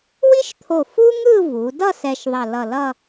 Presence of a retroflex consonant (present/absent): absent